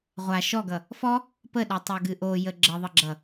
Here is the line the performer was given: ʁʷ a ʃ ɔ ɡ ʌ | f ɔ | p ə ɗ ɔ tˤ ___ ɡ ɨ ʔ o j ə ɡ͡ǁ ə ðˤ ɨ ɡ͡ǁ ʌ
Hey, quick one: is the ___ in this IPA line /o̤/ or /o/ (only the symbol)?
o